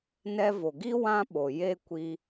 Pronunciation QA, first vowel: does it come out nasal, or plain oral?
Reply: oral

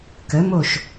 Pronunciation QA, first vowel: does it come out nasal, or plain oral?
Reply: oral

